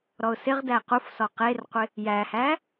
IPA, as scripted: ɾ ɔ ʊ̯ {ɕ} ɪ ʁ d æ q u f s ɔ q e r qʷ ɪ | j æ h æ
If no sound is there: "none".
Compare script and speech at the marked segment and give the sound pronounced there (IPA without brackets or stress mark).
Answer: s